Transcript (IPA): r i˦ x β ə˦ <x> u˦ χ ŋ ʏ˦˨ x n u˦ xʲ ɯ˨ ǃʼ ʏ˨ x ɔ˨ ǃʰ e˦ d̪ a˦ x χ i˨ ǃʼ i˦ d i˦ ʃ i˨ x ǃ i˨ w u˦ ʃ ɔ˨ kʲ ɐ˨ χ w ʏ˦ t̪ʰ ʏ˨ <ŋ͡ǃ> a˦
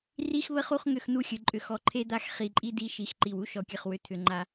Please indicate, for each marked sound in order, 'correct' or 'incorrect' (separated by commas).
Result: incorrect, correct